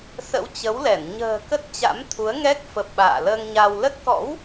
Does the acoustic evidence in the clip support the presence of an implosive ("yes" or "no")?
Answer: yes